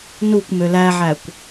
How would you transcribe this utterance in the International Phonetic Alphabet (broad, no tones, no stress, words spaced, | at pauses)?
nukʷ mølæʕækʷ